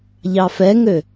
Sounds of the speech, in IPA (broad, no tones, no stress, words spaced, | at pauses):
ʎɑfɛŋø